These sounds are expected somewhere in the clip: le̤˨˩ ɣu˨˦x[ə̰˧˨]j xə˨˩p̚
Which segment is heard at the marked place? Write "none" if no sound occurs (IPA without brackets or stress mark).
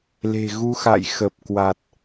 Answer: a̰˧˨